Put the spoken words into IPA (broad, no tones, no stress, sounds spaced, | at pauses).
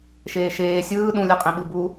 ʃ eː ʃ eː sʲ ɯː ɗ ũ lʲ ɯ qʼ ĩ ɓ ɯ b u